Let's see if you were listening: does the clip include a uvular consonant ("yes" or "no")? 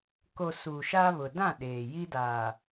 no